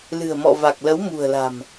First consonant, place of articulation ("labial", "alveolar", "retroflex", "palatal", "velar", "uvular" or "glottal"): alveolar